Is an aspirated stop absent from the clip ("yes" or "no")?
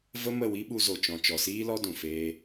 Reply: yes